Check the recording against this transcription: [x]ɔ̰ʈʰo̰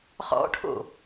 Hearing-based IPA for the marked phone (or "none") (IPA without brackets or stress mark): χ